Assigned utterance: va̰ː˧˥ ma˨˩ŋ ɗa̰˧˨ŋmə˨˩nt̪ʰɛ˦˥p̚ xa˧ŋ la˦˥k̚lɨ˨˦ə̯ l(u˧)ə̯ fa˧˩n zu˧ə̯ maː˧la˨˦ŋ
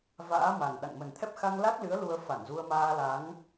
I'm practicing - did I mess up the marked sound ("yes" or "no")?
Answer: no